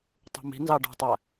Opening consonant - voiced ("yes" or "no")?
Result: no